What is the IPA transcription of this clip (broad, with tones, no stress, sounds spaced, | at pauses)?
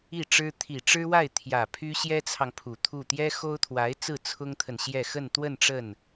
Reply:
i˥˩ ʈ͡ʂ ɻ̩˥ t̪ʰ i˨˩ ʈ͡ʂ ɻ̩˥ w a˥˩ ɪ̯ t̪ʰ j ä˨˩ pʰ y˥ ɕ j ɛ˥ t͡sʰ ɑ˨ ŋ pʰ u˨˩ t̪ʰ u˥˩ t̪ j ɛ˥ x o˥ ʊ̯ t̪ʰ w a˧˥ ɪ̯ t͡s ɹ̩˥˩ t͡sʰ ʊ˥ ŋ t̪ʰ ə˨ n ɕ j ɛ˥˧ x ə˥˧ n t̪ w ə˥˧ n ʈ͡ʂ ə˥˩ n